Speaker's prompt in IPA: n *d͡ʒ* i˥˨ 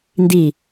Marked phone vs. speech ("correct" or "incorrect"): incorrect